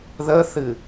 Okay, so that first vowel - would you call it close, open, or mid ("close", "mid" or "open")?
mid